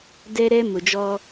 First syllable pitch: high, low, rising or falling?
high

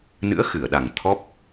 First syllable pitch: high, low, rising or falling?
rising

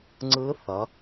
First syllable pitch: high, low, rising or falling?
rising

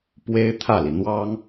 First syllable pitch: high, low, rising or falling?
high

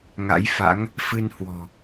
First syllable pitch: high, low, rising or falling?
rising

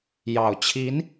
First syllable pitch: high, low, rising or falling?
low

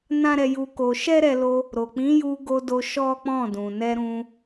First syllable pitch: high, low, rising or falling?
high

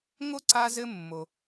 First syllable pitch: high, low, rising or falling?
high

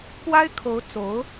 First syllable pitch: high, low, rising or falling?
high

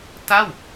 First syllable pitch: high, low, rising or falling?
falling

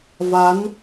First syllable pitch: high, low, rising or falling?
rising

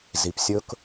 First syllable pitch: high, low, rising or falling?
low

